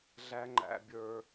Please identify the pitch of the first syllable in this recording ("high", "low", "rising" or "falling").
high